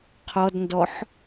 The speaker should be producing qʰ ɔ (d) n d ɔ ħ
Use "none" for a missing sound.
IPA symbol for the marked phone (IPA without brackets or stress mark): d